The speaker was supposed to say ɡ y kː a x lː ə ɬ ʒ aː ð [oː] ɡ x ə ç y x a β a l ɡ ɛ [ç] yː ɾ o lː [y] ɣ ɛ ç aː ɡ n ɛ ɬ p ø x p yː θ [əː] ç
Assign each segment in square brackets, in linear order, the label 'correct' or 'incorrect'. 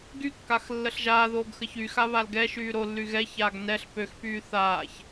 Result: correct, incorrect, correct, incorrect

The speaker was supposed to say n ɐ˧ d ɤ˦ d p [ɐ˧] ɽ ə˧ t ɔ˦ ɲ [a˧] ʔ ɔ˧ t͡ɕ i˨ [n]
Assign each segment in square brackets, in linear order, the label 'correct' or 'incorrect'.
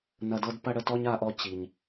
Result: incorrect, correct, incorrect

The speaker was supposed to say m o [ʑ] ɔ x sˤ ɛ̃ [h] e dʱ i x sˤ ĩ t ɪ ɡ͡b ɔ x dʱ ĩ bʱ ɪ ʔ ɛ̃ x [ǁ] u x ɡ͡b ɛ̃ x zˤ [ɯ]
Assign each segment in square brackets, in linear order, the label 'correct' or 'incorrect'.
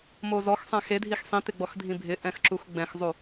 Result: incorrect, incorrect, correct, incorrect

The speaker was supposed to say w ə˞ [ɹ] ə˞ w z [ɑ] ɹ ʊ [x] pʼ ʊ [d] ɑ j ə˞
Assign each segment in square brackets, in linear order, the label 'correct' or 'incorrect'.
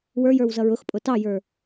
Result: incorrect, incorrect, correct, incorrect

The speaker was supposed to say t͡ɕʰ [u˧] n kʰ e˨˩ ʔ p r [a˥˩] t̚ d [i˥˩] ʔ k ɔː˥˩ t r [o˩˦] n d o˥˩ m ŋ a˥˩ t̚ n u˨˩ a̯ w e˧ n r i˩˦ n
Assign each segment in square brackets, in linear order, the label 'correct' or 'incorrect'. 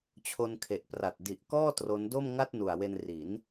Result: incorrect, incorrect, incorrect, incorrect

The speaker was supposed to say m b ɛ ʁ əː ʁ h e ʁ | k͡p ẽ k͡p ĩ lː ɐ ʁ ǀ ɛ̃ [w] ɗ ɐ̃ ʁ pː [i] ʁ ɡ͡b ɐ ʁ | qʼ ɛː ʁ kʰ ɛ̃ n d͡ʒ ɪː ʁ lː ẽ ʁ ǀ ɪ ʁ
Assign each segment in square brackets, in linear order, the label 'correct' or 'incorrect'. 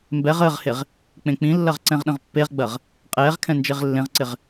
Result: incorrect, incorrect

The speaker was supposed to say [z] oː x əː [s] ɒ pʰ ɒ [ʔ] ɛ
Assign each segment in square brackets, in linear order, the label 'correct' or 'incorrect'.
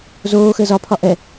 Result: correct, incorrect, correct

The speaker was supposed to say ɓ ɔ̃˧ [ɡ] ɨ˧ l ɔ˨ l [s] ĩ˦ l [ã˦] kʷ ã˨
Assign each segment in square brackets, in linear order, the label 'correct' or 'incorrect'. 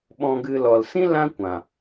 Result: correct, correct, correct

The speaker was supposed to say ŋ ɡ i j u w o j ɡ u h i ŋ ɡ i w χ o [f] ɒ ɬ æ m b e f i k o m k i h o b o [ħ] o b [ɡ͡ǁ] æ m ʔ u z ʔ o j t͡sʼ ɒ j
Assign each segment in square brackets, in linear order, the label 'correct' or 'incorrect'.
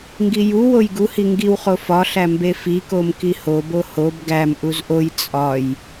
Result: correct, incorrect, incorrect

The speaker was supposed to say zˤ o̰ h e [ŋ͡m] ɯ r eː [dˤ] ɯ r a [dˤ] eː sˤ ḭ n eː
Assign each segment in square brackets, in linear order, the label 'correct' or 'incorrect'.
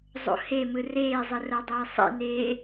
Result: incorrect, incorrect, correct

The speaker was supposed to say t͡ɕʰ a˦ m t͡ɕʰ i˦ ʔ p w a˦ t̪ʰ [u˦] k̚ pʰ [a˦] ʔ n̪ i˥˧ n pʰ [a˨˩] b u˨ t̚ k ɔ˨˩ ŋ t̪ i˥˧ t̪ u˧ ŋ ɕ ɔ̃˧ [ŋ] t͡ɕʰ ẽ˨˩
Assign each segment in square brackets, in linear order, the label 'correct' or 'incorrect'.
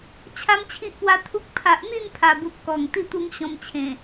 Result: correct, incorrect, correct, incorrect

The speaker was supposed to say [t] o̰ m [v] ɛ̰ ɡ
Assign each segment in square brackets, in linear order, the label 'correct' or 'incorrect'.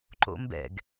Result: incorrect, incorrect

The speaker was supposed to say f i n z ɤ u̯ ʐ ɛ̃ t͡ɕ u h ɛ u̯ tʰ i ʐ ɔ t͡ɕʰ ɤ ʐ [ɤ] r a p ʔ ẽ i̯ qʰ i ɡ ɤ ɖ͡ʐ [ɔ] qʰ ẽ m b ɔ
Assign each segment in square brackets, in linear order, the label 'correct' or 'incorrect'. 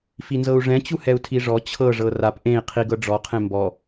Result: correct, correct

